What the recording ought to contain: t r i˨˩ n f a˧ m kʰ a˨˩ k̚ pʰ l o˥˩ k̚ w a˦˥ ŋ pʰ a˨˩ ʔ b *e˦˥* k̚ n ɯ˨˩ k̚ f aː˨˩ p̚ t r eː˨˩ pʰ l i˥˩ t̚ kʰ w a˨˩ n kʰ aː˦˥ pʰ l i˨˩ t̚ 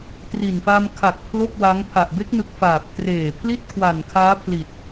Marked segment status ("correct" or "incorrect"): correct